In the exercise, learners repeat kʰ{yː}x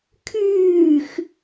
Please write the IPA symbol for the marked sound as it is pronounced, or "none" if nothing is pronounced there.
yː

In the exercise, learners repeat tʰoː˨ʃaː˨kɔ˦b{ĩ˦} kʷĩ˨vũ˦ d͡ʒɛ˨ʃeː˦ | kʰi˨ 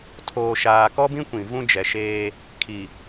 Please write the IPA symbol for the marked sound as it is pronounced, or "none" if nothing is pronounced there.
ĩ˦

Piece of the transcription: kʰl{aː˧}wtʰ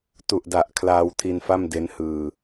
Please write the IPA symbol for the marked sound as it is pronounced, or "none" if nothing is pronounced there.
aː˧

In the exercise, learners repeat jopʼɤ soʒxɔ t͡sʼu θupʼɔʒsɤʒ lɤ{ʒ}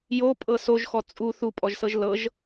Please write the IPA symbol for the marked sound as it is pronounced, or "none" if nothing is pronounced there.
ʒ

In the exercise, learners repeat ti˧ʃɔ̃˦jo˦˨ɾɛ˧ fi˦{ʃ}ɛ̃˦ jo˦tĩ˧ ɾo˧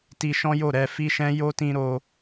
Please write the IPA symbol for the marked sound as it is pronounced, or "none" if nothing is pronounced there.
ʃ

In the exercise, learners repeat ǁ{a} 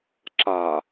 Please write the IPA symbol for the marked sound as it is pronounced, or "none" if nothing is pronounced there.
a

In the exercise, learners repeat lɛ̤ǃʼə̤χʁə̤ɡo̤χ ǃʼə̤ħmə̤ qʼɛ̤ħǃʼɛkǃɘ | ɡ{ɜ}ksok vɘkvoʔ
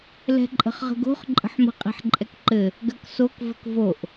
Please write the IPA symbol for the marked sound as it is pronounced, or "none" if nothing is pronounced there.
ɜ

